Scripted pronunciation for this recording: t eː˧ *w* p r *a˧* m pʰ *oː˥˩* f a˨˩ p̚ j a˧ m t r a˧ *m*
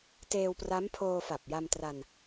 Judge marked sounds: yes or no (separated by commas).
yes, no, no, no